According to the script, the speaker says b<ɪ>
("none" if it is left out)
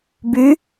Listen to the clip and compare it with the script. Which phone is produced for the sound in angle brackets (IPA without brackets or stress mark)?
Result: y